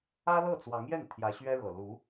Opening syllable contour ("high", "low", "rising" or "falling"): high